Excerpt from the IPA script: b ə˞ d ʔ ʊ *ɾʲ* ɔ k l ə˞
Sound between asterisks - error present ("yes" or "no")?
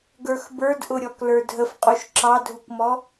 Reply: no